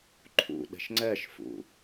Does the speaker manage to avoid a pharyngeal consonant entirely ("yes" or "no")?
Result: yes